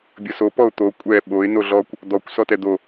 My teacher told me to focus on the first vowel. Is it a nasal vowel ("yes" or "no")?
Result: no